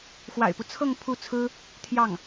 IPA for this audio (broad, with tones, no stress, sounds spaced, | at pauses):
x w a̰˨˩ ɪ̯ p u˦ t͡sʰ ɤ˥˧ ŋ pʰ u˥˩ t͡sʰ ɹ̩˥ | t̪ʰ j ɑ˥˩ ŋ